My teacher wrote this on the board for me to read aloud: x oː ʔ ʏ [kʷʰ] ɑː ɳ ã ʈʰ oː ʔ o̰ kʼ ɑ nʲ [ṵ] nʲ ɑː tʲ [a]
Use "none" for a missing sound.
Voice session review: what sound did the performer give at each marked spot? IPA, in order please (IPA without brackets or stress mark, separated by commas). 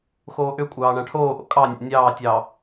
kʷʼ, o̰, ɑ